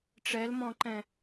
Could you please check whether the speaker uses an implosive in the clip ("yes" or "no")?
no